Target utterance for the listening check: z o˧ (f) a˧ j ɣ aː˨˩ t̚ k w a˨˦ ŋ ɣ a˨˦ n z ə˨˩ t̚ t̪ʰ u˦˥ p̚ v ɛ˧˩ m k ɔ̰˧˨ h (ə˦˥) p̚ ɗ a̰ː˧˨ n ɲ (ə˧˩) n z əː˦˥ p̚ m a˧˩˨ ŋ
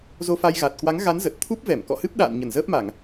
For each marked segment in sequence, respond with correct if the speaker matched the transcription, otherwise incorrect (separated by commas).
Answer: correct, incorrect, correct